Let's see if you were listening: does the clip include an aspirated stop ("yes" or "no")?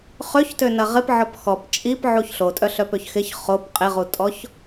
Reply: no